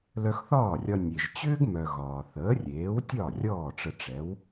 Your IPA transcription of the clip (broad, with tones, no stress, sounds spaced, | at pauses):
l œ˧ x θ ɒː˥˩ rʲ ɒ˧ nʲ e˩ ʒ t͡ɕ ʏː˥ ɡ m œ˩ ɣ ɒː˩ θ əː˩˥ rʲ eː˩˥ w tʲ ɒ˥˩ rʲ ɔː˥˩ ʈ͡ʂ ə˧ ʈ͡ʂ ɛ˩˥ w